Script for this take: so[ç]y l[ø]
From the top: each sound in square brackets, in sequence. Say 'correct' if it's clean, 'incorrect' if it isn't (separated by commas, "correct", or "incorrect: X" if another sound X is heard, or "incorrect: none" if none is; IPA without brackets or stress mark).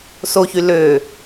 correct, correct